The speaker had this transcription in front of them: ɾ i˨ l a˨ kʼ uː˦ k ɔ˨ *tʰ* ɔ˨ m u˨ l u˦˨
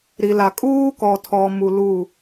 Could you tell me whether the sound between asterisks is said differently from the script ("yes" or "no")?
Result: no